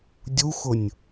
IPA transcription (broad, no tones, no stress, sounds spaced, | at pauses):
dʲ u x ʊ nʲ